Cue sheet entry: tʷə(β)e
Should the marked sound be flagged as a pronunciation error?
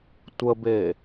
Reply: yes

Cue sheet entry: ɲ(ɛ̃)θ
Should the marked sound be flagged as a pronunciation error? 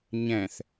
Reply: no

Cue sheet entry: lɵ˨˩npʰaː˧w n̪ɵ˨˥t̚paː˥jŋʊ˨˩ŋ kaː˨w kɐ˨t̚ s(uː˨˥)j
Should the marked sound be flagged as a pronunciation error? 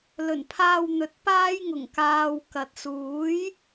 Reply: no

